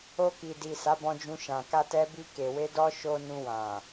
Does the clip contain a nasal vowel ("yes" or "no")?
yes